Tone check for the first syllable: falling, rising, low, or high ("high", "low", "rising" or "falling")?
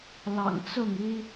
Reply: low